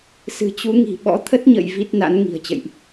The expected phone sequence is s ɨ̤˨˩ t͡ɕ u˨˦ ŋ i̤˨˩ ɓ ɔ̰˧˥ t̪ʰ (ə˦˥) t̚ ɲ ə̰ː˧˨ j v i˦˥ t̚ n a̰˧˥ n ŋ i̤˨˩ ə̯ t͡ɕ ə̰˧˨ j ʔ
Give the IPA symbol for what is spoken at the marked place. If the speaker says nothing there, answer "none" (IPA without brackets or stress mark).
ə˦˥